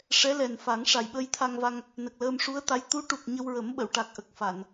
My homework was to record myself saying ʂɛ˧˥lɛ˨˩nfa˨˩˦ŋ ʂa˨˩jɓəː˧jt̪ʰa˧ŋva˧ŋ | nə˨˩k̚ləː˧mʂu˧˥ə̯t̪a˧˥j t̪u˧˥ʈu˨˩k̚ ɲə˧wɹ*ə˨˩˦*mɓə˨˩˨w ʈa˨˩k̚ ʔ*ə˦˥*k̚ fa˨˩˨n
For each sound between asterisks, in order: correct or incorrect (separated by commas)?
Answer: correct, incorrect